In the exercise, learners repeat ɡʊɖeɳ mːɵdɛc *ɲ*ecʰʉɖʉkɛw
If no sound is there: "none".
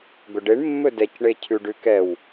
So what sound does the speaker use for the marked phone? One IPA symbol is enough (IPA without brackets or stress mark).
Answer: ɳ